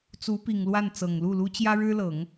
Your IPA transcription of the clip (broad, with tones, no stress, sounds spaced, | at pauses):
t͡s u˧˥ p i˨˩ ŋ l w a˥˩ n t͡s ɤ˨˩ ŋ l u˥˩ l u˥ t͡ɕ j ä˥ ɻ ɻ̩˥ l ɤ˨˩˦ ŋ